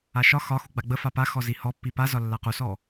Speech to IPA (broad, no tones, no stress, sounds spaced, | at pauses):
a ʃ ɒ x ɒ x u ɡ͡b a ɡ͡b ə f a p a x ɔ z i h ɔ pː i p a z ɒ lː a q u s ɔ